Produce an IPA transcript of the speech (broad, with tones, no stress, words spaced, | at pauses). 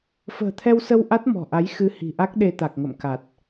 fə̤ː˨˩t̪ʰɛ˧wsə˧w ʔa˦˥t̚mɔ̤˨˩ʔa˨˦j xɨ˧hi̤˨˩ʔa˦˥k̚ɗe˧ t̪a˨˩k̚ŋə̰˧˨mka˨˩t̚